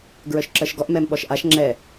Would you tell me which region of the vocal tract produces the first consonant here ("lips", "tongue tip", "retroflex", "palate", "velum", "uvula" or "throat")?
velum